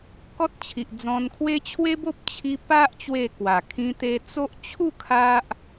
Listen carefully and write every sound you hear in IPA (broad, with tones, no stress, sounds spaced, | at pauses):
k ɔ˦ t̚ t͡ɕʰ i˨ ʔ d͡z ɔ̃˧ n kʰ w e˦ t͡ɕʰ w e˦ b o˦ p̚ t͡ɕʰ i˦ p a˦ ʔ t͡ɕ w e˥˧ k w a˨˩ kʰ ĩ˦ t̪ e˦ t͡s o˦ ʔ t͡ɕʰ u˥˧ kʰ a˦ ʔ